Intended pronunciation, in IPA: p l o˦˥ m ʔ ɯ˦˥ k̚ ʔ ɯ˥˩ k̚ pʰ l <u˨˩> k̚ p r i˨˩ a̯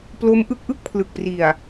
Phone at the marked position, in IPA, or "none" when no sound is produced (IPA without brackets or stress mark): ɯ˨˩